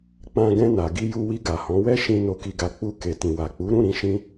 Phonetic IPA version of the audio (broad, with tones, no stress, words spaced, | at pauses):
k͡pã˧ɡɛ̃˧na˨ɡi˧ ju˧wi˧ ɡa˨hɔ̃˨˦wɛ˦ʃĩ˧ no˧ki˧ɡa˧k͡pu˧ ke˨tĩ˨wa˨k͡pu˨˦ ɾũ˦˨ɾĩ˧ ʃĩ˦